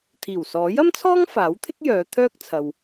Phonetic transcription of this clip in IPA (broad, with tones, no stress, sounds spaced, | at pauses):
t̪ʰ iː˨˩ w s ɔː˨˥ j ɐ˥ m t͡sʰ ɔː˥ ŋ f aː˨˥ w t̪ʰ ɪ˥ k̚ j œː˨˧ t̪ʰ œː˧ k̚ t͡sʰ ɐ˧ w